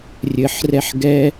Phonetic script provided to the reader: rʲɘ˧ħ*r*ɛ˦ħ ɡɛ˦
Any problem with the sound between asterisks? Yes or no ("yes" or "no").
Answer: no